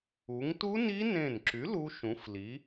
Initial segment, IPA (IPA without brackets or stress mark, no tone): u